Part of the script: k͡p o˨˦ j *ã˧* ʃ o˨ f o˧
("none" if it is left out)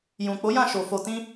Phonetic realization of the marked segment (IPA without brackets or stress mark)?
ã˦˨